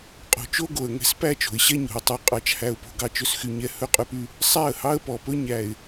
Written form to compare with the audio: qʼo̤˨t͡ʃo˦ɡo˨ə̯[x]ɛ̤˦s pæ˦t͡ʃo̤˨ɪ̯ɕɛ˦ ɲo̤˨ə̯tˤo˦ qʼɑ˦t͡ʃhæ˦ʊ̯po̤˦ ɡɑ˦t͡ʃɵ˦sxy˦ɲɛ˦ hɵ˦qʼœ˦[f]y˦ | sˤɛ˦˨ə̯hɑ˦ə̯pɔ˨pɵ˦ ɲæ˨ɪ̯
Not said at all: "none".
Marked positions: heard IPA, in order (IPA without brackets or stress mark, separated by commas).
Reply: ŋ, p